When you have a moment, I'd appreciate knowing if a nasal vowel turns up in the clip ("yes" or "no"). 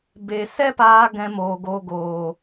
yes